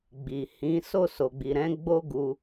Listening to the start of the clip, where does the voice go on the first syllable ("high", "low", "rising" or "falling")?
low